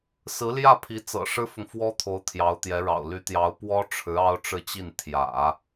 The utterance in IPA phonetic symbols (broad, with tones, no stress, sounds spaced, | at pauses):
s ɹ̩˧˥ l j ä˥˩ pʰ i˧˥ t͡s ɤ̰˨˩ ʂ ɻ̩˥ f ʊ˨ ŋ f w ɔ˥ t̪ʰ o˧˥ ʊ̯ t̪ʰ j ɑ˧˥ ʊ̯ t̪ j ɛ˧˥ ɻ ɑ̰˨˩ ʊ̯ l y˧˥ t̪ j ɑ˧˥ ʊ̯ p w ɔ˥ ʈ͡ʂʰ ɻ̩˧˥ ɑ˥ ʊ̯ ʈ͡ʂ ɻ̩˥˧ t͡ɕ i˥˩ n t̪ʰ j ä̰˨˩˦